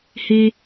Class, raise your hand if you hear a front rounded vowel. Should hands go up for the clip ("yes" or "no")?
no